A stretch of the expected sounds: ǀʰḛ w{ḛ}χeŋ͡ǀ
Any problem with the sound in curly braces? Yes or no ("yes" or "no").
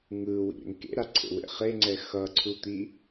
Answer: no